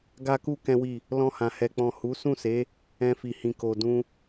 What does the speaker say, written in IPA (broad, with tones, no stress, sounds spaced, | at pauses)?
ɡ a˦ k u˦ k ɛ̃˦ w i˦˨ | l ɔ̃˧ h ã˨ h ɛ˨ k͡p ɔ̃˨ h u˨˦ s ũ˦˨ s e˨˦ | ɛ̃˧ f i˨ h ĩ˨ k o˨ d ũ˧